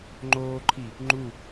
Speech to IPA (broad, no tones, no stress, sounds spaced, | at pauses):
ŋ͡ǃ oː ǃʰ i | ŋ͡ǃ u